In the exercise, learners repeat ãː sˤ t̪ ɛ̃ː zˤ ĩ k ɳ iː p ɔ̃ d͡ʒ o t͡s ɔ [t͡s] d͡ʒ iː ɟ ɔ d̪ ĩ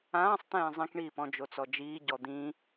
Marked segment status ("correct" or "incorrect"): incorrect